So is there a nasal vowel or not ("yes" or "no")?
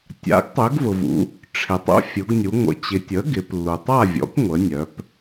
no